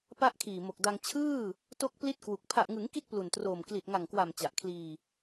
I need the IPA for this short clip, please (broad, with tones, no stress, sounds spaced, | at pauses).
p a˦˥ ʔ kʰ iː˨˩ m o˨˩ k̚ d a˧ ŋ t͡ɕʰ ɯː˥˩ | t o˦˥ k̚ p l i˦˥ t̚ k w u˨˩ k̚ pʰ a˨˩ ʔ ŋ ɯ˩˦ ŋ k i˥˩ t̚ p l u˨˩ n t r oː˨˩ m k l i˨˩ t̚ ŋ a˨˩ ŋ k w a˨˩ m t͡ɕ a˨˩ ʔ kʰ l iː˧